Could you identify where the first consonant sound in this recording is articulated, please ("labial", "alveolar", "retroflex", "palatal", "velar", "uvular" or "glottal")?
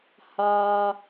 glottal